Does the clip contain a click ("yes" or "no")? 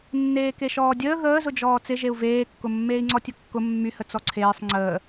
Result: yes